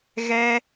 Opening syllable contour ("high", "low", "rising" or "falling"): high